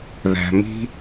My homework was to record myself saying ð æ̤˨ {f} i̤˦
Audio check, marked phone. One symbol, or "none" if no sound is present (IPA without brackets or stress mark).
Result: m